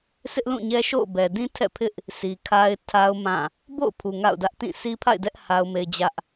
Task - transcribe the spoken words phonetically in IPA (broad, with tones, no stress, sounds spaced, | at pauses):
sʰ ɪ˦ ʔ l ũ˦˨ ɲ ɛ˦ ʃ o̰˦˨ ʊ̯ b ɛ˨ d ĩ˦ tʰ ɛ̰˦˨ pʰ ɪ˦ ʔ | s i˨ kʰ a˦ ɪ̯ tʰ a˦ ʊ̯ m ã˦˨ | b o̰˦˨ ʊ̯ pʰ u˨ ŋ a̰˦˨ ʊ̯ d ä˦ ʔ t ĩ˦˨ s i˦ pʰ a̰˦˨ ɪ̯ d ɛ˦ ʔ h a˦ ʊ̯ m e˦ ɪ̯ d͡ʑ ä˦ ʔ